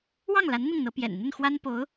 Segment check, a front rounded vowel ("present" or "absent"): absent